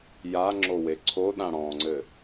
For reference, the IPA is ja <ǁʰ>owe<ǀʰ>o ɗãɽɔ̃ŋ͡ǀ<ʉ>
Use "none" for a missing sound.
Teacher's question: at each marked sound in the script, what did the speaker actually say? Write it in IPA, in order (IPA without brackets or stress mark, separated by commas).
ŋ͡ǁ, ǀʰ, ɘ